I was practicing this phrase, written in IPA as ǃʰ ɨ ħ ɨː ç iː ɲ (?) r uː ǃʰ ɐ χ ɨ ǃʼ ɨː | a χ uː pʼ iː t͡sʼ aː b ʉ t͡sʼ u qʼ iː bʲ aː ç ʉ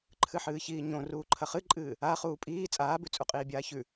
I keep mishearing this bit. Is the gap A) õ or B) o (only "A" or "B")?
A